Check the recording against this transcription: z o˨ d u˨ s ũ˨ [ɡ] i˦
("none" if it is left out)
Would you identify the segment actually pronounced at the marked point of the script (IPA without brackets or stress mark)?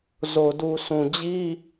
d͡ʑ